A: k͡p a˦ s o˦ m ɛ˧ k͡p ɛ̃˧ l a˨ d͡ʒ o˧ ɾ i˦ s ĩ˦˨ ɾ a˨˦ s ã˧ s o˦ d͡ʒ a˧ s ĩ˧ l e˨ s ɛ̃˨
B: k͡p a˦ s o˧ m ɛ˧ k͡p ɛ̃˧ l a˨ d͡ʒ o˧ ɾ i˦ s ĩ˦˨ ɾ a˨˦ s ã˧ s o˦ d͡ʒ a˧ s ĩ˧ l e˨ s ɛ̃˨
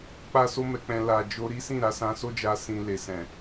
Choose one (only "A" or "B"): A